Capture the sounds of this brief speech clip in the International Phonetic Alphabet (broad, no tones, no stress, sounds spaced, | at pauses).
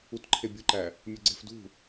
u t ǃʰ e bʲ u ǃ æ | mʲ u ɡ͡ǀ e̤ f d ṳ